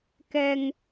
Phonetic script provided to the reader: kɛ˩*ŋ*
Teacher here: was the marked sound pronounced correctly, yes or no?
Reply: yes